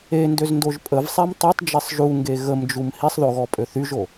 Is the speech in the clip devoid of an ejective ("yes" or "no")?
no